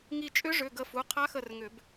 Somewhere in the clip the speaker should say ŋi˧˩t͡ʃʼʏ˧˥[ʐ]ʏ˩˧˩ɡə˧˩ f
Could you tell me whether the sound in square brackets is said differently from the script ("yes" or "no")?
no